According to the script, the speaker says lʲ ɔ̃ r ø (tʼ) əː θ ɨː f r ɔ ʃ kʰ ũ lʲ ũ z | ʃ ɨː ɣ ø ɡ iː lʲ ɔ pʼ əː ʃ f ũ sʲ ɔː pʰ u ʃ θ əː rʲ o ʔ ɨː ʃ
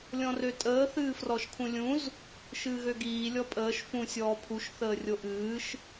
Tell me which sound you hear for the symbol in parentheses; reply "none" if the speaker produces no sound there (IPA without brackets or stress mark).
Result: tʼ